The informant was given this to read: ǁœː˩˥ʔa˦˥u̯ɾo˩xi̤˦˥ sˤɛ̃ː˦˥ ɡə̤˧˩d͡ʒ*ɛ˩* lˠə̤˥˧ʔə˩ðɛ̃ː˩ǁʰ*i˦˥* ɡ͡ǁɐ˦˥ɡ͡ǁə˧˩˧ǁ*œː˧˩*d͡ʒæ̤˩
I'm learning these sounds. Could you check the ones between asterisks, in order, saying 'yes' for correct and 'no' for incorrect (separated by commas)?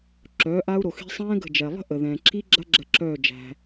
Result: yes, yes, yes